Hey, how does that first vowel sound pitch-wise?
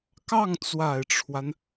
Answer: falling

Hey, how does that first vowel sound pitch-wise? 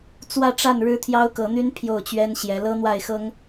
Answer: falling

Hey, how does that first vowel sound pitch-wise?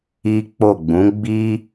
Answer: high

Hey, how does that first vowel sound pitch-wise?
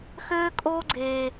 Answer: high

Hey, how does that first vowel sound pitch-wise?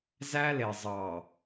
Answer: high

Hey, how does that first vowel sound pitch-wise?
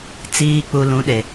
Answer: low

